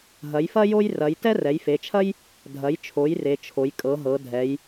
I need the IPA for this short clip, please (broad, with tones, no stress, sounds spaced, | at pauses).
ɦ ɐ˩˧ j f ɐ˥ j o˥ j r ɐ˩˧ j t ɛ˥ r ɛ˩˧ j f e˩˧ t͡ʃʰ ɐ˥ j | dʱ ɐ˩˧ j t͡ʃʰ o˩˧ j r e˩˧ t͡ʃʰ o˩˧ j kʼ ɤ˩˧ ɦ ɤ˩˧ dʱ ɛ˩˧ j